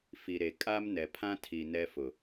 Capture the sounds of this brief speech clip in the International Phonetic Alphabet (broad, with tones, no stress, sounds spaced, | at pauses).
f i˨ ɾ e˨ kʼ a˦ m n ɛ˨ pʰ ã˦ tʰ i˨ n ɛ˦ f ʊ˨